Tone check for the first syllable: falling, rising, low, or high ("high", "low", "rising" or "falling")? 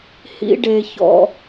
high